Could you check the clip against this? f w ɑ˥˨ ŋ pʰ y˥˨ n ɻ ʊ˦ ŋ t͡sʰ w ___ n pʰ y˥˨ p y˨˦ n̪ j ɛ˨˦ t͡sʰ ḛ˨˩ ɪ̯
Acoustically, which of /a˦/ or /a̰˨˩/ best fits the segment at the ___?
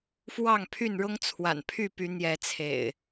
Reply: a̰˨˩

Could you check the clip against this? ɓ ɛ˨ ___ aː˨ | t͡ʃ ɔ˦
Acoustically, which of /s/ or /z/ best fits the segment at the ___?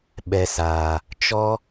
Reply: s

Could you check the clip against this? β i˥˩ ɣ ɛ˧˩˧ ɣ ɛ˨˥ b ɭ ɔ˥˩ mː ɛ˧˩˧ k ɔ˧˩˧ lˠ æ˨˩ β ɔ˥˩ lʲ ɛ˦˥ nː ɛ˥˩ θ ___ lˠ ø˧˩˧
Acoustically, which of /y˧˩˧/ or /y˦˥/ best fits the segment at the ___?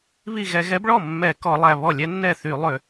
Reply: y˧˩˧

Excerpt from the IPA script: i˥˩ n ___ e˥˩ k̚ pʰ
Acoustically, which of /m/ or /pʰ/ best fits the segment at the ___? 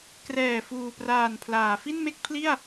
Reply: m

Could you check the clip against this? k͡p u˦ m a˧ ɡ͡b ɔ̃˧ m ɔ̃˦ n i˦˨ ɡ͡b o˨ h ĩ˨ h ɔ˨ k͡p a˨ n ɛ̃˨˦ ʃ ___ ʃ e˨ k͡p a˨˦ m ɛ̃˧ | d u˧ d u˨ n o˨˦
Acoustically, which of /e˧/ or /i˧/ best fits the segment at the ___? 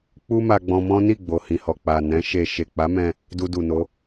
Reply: e˧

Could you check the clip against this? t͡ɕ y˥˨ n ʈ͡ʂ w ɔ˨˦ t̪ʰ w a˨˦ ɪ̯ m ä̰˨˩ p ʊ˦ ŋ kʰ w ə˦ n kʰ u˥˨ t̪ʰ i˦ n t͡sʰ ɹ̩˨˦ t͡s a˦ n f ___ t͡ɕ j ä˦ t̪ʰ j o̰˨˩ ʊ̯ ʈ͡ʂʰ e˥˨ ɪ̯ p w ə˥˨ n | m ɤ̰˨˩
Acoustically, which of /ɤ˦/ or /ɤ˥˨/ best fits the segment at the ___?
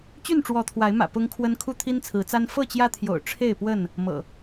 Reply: ɤ˥˨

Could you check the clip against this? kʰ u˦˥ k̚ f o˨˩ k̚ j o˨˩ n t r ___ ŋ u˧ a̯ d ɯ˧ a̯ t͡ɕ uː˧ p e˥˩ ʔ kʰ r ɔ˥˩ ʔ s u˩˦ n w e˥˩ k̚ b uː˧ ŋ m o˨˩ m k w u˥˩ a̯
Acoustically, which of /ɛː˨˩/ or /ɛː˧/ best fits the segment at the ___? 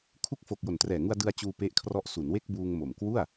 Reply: ɛː˨˩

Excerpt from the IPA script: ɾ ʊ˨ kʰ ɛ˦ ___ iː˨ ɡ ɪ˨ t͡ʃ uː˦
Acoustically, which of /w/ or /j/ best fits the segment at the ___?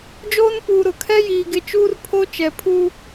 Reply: j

